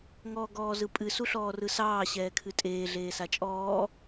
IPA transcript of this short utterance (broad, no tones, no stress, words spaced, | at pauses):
ŋɔːɡɔːzɯpʼɨ suɬɔːrɯsɑː ɕɛːkʰɨtʼeː ɮeːsat͡ʃʼɔː